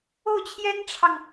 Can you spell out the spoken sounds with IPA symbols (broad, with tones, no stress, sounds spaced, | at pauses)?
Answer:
o˥˩ ʊ̯ t͡ɕʰ j ɛ˥ n ʈ͡ʂʰ ɑ˨ ŋ